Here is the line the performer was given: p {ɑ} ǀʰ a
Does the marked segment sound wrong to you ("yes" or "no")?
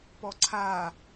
yes